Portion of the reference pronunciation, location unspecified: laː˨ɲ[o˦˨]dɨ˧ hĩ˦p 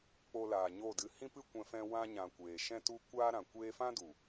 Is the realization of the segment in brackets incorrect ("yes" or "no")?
no